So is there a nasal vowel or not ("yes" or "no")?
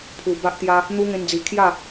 yes